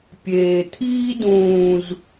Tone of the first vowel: low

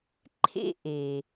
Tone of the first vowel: high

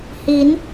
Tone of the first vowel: rising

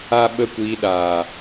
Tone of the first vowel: high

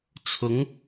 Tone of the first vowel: rising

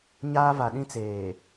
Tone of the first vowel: high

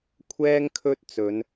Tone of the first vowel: high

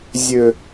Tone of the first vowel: low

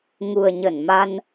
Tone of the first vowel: low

